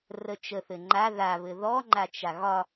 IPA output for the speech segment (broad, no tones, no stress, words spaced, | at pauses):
rət͡ʃəθɘ ŋ͡ǃa ðaβɘ ðɔŋ͡ǃat͡ʃa ɣɒ